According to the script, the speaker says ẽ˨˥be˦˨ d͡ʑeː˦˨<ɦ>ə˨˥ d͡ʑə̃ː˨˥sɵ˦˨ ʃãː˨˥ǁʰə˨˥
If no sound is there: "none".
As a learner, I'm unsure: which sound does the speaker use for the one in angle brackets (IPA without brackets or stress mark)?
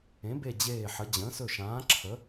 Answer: ħ